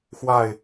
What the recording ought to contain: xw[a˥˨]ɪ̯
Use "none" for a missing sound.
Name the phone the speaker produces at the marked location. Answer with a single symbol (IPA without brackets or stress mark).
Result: a˥˨